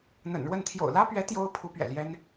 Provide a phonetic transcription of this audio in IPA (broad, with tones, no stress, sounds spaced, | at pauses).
n̪ ə̰˨˩ n ɻ w ə˥˩ n t̪ʰ j o̰˨˩ ʊ̯ l ä˥ p ɥ ɛ˧˥ t̪ j o˥ ʊ̯ pʰ u˧˥ p ɥ ɛ̰˨˩ l j ɛ˥ n